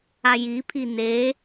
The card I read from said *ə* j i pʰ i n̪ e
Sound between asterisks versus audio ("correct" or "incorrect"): incorrect